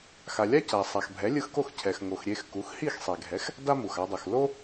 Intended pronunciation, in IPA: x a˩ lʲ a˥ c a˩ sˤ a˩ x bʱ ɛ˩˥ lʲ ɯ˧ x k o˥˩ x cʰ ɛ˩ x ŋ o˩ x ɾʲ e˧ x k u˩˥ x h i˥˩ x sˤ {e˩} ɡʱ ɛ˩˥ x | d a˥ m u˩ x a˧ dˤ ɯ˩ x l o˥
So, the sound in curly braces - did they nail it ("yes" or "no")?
yes